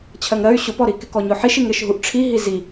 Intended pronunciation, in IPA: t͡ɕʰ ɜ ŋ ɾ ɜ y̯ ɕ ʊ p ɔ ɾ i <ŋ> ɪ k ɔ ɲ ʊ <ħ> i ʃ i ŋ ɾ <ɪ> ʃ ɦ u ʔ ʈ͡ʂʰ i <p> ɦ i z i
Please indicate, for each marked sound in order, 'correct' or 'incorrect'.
incorrect: k, correct, correct, incorrect: none

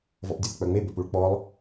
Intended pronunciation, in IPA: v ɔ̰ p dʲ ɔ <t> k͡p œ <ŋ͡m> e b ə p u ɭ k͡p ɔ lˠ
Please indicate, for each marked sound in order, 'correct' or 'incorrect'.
incorrect: θ, correct

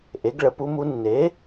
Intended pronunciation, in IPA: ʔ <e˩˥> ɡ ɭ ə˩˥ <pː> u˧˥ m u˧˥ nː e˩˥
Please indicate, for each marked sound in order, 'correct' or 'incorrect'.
correct, incorrect: p

